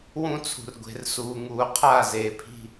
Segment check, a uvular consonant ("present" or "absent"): present